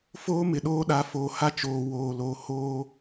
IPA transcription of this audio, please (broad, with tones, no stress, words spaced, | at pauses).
foː˦mɪ˨ɗoː˦ɗa˨˦ foː˨ha˦t͡ʃoː˨ woː˨lo˨˦hoː˦